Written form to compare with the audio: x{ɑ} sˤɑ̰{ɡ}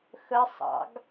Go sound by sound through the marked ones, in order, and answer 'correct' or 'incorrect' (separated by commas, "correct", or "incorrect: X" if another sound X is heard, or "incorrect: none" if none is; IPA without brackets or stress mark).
incorrect: ə, correct